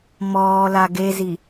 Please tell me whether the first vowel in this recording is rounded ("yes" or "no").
yes